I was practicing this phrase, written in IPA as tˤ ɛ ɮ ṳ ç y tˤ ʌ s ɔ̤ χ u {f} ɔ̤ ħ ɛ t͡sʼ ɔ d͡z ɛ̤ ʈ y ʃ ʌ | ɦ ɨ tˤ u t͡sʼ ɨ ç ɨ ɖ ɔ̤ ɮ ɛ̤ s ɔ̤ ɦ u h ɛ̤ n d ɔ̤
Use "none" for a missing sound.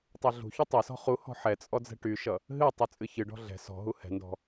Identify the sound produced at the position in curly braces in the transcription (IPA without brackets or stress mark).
h